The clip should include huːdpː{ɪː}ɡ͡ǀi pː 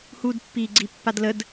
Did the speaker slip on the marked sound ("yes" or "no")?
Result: yes